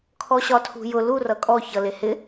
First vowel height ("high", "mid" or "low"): mid